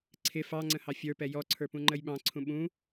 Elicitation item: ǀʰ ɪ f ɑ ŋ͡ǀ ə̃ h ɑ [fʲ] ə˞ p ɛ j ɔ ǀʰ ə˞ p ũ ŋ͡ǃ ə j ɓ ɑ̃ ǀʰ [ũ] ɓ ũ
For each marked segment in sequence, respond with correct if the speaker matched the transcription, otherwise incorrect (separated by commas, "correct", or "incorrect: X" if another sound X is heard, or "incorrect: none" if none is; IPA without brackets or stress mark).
correct, correct